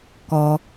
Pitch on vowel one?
low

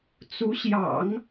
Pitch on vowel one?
rising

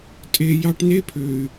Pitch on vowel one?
low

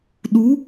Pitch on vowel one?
rising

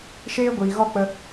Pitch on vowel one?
high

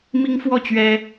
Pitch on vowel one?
high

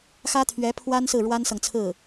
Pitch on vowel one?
high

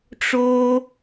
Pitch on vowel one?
high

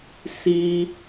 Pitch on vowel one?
high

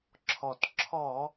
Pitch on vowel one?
low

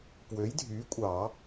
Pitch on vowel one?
rising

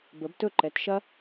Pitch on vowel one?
rising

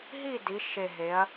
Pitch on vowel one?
falling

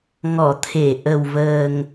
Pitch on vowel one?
low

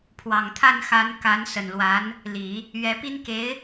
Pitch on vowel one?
low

